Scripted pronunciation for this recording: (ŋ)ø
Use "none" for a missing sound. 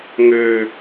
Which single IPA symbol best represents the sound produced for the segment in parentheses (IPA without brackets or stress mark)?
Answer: ŋ